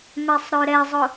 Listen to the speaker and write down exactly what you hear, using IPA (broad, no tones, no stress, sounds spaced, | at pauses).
m ɛ sˤ ɾ ø ɾ ɛ zˤ ʊ